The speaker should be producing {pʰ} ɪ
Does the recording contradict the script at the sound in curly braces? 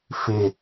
yes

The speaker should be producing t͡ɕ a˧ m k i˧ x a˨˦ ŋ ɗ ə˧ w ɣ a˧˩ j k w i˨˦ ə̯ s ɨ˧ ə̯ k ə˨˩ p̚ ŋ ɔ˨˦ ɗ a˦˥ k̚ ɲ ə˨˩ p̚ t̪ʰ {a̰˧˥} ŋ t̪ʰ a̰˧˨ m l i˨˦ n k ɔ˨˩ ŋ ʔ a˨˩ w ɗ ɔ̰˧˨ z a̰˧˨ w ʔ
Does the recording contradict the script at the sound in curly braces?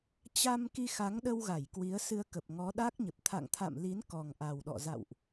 yes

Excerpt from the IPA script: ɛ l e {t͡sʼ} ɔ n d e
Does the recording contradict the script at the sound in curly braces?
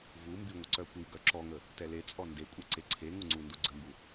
no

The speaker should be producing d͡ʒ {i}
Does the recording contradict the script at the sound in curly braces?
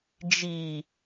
no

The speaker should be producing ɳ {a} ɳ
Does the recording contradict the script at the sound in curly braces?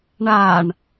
no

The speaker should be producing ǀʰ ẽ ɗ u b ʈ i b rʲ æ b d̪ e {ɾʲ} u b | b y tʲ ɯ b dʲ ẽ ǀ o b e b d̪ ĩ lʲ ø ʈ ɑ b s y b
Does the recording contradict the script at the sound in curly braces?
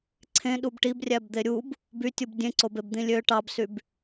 no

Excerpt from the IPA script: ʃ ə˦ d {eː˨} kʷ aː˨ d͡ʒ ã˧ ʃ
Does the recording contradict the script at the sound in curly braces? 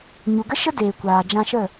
no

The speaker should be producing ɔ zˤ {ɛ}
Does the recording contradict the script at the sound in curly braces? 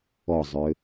yes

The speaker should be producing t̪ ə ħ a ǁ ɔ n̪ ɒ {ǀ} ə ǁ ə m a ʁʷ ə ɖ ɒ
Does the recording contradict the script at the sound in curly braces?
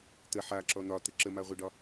yes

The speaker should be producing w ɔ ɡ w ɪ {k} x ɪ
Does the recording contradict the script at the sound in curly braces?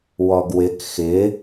no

